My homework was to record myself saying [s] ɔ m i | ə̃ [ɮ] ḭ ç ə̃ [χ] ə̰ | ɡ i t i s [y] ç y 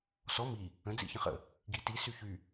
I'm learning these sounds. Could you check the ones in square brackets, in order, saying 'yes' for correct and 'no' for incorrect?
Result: yes, no, yes, yes

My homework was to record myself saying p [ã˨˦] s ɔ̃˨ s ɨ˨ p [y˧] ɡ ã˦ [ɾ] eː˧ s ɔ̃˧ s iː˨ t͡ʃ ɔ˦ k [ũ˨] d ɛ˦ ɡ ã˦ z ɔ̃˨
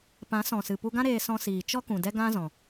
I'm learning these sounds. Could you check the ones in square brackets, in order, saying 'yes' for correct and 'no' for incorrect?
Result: yes, no, yes, yes

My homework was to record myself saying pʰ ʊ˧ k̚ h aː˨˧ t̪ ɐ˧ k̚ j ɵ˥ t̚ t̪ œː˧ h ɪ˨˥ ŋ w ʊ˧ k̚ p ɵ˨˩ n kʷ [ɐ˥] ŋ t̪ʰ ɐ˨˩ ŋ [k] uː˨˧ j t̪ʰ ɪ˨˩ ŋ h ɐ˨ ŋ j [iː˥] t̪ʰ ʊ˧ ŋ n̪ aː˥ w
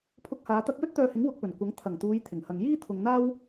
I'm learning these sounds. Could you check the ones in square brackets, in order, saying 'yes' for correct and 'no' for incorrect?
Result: no, no, yes

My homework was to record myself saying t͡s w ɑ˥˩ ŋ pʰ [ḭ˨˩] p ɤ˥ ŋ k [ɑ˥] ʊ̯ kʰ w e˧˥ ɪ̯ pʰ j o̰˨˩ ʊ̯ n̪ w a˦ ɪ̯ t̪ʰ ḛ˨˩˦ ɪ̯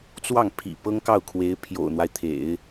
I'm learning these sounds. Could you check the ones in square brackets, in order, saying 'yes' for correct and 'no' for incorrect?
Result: yes, no

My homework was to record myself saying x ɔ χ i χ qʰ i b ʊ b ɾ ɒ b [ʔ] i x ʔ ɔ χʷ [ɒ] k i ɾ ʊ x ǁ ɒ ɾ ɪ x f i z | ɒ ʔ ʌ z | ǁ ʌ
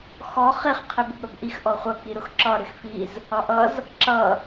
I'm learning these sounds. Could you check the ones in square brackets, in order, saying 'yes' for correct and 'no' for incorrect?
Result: yes, no

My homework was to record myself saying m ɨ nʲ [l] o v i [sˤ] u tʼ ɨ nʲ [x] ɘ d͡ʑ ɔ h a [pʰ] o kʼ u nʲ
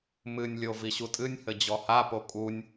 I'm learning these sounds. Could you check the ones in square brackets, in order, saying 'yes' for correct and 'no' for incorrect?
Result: no, no, no, no

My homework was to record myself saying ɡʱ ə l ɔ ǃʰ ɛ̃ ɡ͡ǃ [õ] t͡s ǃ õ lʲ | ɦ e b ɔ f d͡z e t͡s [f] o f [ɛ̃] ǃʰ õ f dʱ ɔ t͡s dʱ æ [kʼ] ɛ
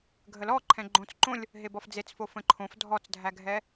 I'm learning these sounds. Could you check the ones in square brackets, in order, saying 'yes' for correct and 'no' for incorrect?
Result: yes, yes, no, no

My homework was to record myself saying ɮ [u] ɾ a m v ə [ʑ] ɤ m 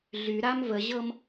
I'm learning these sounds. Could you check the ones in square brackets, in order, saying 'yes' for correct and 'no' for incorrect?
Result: no, yes

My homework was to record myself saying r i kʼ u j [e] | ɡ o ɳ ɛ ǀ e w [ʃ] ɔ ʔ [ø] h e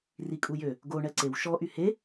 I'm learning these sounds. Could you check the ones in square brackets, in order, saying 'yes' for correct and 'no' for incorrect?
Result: no, yes, no

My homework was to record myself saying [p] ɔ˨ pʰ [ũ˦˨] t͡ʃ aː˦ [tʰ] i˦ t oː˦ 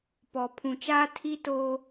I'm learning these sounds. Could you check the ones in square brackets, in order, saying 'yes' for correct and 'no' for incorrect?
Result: yes, no, yes

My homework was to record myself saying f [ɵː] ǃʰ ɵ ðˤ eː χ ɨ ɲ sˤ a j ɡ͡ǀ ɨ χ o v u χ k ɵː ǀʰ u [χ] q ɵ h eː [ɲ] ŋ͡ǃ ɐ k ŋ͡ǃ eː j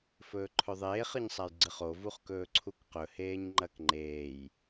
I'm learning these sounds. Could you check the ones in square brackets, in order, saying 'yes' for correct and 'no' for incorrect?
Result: yes, no, yes

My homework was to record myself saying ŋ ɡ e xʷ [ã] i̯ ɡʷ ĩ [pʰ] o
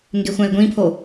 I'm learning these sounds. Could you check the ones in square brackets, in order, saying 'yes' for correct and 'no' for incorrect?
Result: no, yes

